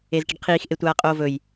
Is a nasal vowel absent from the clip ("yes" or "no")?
yes